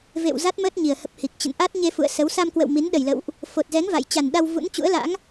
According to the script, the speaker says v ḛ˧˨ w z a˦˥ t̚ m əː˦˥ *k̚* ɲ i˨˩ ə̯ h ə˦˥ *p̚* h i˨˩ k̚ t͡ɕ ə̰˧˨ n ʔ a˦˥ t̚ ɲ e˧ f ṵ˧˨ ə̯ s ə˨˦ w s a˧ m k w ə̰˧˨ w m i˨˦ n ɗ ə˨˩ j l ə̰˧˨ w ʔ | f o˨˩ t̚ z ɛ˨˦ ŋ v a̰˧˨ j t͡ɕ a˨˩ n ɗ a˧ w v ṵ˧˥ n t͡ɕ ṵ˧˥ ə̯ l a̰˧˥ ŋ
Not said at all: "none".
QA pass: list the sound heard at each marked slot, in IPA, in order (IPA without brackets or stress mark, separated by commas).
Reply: t̚, p̚